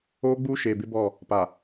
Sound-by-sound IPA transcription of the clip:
oː˦ ɡ͡b uː˦ ʃ eː˨ b ɪ˦ b ɔ˦˨ | p a˨

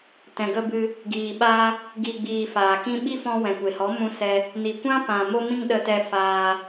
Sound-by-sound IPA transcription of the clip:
t ɛ̃˨ ɡ ə˧ b ɨ˧ | ɡ iː˨ ɓ a˧ | ɡ i˨ ɡ͡b iː˨ f aː˨ k ĩ˧ ɓ i˦ f ɔ̃˧ w ɛ̃˨ kʷ e˨ h ɔ˨˦ m ũ˧ s ɛ˧ | n i˨ kʷ ã˦ p ã˨ m o˦ m ĩ˦ ŋ ɗ ə˧ t ɛ˧ f aː˧

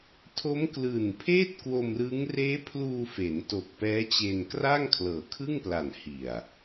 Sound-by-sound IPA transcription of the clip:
tʰ o˦˥ m k l ɯː˨˩ n pʰ eː˥˩ t̚ k w o˧ m r ɯː˦˥ ŋ r eː˦˥ pʰ l uː˧ f e˩˦ n t o˨˩ k̚ p ɛː˦˥ t͡ɕ eː˧ n k r a˥˩ ŋ kʰ l ɤː˨˩ kʰ ɯ˥˩ ŋ p l a˨˩ n h i˨˩ a̯

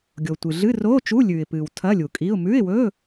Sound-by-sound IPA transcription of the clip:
ɡʲ o˩ tʷ ɨ˩ ɮ ɨ˧˥˧ r oː˧˥˧ t͡ʃ u˧˥˧ lʲ ʉː˩ ɪ̯ p ɨː˩ w tʰ ɐ˧˥˧ lʲ u˩ kʼ i˧˥˧ ʊ̯ m ʉ˧˥˧ ɪ̯ w ɵː˧˥˧

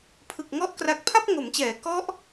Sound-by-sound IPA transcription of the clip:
pʰ ɯ˨˩ k̚ ŋ ɔ˦˥ ʔ k r a˨˩ k̚ pʰ a˥˩ p̚ ŋ o˩˦ m t͡ɕ ɛː˩˦ k ɔ˦˥ ʔ

